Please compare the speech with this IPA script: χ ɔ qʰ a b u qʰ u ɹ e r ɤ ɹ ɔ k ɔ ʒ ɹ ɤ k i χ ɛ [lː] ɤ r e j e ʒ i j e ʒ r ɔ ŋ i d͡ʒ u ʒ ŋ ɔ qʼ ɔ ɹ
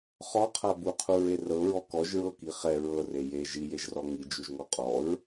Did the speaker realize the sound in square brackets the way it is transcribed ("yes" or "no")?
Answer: no